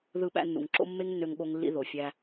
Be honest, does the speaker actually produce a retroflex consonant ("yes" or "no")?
no